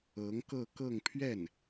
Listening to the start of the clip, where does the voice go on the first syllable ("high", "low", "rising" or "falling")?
rising